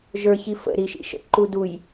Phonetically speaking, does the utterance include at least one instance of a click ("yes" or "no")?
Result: yes